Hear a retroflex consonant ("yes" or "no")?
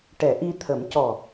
yes